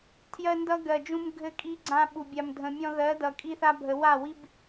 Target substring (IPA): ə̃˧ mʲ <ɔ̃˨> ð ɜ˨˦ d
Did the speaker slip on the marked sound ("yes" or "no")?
yes